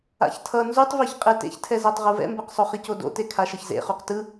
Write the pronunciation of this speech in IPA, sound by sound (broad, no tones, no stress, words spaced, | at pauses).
a̰çtʰʌ nzutˤviç qʼɛtḛçtʰɛzatˤ ʁuvɛ̰mbɛqsˤo χicodo̰te kʰaʃʌçzḛ χuqtɯ